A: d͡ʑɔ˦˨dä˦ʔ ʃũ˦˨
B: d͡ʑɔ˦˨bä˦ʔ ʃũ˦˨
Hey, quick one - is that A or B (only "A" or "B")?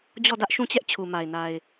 A